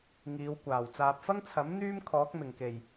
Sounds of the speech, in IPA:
ŋ iː˨˧ w kʷ aː˨˩ w t͡s aː˨ p̚ f ɐ˥ ŋ t͡sʰ ɐ˨˥ m n̪ yː˥ m kʰ ɔː˨˥ k̚ m ɪ˨˩ ŋ k e˨˩ j

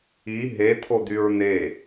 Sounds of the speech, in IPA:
i ɦ e t̪ʰ o d̪ y ɹ n̪ e

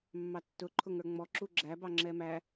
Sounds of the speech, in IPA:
mː ɑ tː ʊ ǃʰ ʊ ŋ ə˞ ŋ͡m ɔ ǁ u ɡ͡ǁ æ b ɑ ŋ͡ǁ ɛ m æ

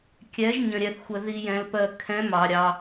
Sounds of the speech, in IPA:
kʲ ɛ˧˥ ʒ ɲ ə̃˧ ɾʲ ɛ˧ θ xʷ ə˧ ð i˧ j ɛ̃˧ l p ɜ˧ kʰ ɛ̃˧˥ m ɑ˧ ɾʲ ɑ˧

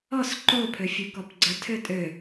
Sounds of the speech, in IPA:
ɔ s ǃ o pʰ ø fʲ ø k ɔ p ɡ͡ǀ ə tʰ ø tʼ ø

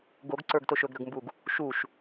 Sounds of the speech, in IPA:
ɡ o ɡ ǀ ə˞ ɡ t o ʃ ɵ ɡ ɾ ɵ ɡ m b u ɡ | ʃ u ʃ

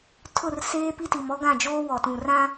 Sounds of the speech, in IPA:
tʰ ʊ˦˨ r s eː˦ p i˦ t i˨ m ɔ˦ ɡ ã˦˨ d͡ʒ oː˦ w ɔ˨ t ũ˨ r ã˦

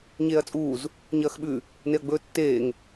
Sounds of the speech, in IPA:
ɲ eː ɐ̯ t͡sʼ uː z | ɲ ɐː x ɓ ʉ | n e ɐ̯ ɡ͡b ɵː tː eː ŋ

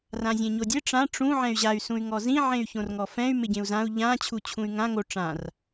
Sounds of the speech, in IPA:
r ã zʲ ẽ ɲ o dʲ e ʈ͡ʂ ã ʈ͡ʂ ũ ʕ ɛ̃ y̯ ʑ a y̯ s ũ y̯ ŋ ɔ z ĩ ʕ ẽ y̯ ç õ r ŋ ɔ f ɛ̃ y̯ m ɪ ɟ ẽ u̯ z ã u̯ ʎ ã t͡ɕʰ u t͡ɕʰ ũ y̯ ŋ ã ŋ o ʈ͡ʂ ã r

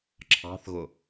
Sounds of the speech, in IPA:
ǁʰ ɑ̤ θ ɣ ʊ

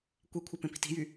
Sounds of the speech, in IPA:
kʷ e kʷʰ e p ẽ p i̤ t i̤ j y

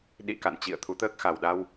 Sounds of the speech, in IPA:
ɗ ḭ˧˨ k a̰˧˨ n t͡ɕ ḭ˧˨ ə̯ t̪ʰ u˨˦ t̪ əː˦˥ k̚ x a˨˩ w ɗ a˧ w

